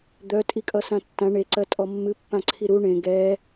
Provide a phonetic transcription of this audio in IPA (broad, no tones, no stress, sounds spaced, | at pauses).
d̪ œ tʼ i kʼ ʌ s ã tː ã ɳ e ǀ ɜ tʼ ɔ mː ɨ pː ã ǀʰ i ɾ u ɳ ẽ ɡ ɛ